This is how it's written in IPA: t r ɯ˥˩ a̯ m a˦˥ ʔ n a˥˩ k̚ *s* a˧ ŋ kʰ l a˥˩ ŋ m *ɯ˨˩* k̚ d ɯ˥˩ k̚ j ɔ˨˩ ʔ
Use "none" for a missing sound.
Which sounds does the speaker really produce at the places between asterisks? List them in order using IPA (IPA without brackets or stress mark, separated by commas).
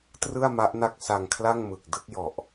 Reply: s, ɯ˨˩